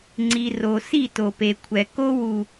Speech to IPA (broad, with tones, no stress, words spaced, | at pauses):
ŋ͡ǀi˨ ro˨si˦˨ to˨pe˨kʷʰɛ˨ ko˦wu˨